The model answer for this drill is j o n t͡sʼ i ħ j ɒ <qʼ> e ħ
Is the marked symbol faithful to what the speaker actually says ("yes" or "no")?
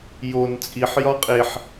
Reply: yes